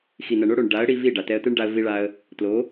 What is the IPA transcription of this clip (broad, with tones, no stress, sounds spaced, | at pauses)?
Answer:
x i˨ n ɐ˨ ɳ o˧ ɽ o˨ ɳ ɖ a˨˦ ə̯ ɽ i˧ v i˦˨ ɖ a˨ t ɛ˧ ə̯ t ɨ˦ ɳ ɖ a˧ ə̯ v i˧ ɭ a˧ ə̯ | t l o˨˦